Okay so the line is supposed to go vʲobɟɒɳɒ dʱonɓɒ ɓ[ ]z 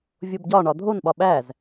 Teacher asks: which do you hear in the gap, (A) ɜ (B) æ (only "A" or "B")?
B